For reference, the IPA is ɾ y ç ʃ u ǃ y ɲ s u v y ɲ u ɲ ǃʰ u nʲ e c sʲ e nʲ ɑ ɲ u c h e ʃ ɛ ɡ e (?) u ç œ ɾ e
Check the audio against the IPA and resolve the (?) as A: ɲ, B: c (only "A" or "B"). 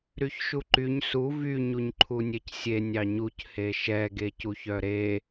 B